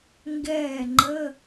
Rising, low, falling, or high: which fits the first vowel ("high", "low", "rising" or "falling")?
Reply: falling